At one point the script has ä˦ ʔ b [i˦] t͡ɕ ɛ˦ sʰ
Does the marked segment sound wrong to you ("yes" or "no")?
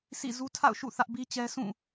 no